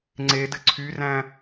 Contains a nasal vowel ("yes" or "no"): yes